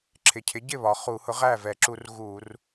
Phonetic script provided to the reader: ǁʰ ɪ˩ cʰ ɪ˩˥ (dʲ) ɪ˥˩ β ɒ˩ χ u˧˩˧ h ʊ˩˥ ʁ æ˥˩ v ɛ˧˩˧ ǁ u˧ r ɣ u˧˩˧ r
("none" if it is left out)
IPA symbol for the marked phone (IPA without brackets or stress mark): ɟ